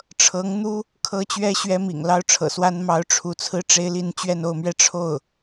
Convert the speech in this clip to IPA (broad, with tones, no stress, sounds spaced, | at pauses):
ʈ͡ʂʰ ɤ˧˥ ŋ n̪ u˥ | kʰ ɤ˥ t͡ɕ ɥ ɛ˥ ɕ ɥ ɛ˥ m ḭ˨˩ ŋ l ɑ˥ ʊ̯ ʈ͡ʂʰ ɤ̰˨˩ s w a˥ n m ɑ˧˥ ʊ̯ ʈ͡ʂʰ u˧˥ t͡sʰ ɹ̩˥ ʈ͡ʂ e˥ ɪ̯ l i˥˧ n t͡ɕ ɥ ɛ˥˧ n o˥˧ ʊ̯ m ɥ ɛ˥˧ ʈ͡ʂʰ o˥˩ ʊ̯